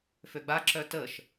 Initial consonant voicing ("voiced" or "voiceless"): voiceless